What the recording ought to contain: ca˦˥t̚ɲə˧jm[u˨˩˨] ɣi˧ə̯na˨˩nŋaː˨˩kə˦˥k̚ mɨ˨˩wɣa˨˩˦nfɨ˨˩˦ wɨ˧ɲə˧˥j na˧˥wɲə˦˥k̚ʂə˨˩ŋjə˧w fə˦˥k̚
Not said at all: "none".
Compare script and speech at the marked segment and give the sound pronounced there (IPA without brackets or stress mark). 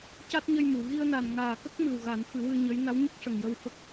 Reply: u˨˩˨